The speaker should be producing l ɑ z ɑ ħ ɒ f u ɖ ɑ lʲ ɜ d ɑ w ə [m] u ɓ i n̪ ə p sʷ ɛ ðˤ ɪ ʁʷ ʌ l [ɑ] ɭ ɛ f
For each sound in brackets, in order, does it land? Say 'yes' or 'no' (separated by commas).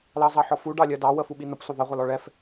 no, no